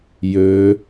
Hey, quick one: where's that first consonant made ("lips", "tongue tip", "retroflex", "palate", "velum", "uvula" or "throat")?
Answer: palate